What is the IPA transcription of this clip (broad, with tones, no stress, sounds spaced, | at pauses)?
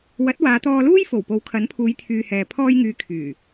w ɐ˨˥ t̚ w aː˨˧ t̪ ɔː˧ l uː˥ j f o˨˩ w p o˨˥ w kʰ ɐ˨˥ n pʰ uː˨˧ j t̪ʰ yː˨ h ɛː˨ pʰ ɔː˧ j ŋ yː˨˧ kʰ yː˨˩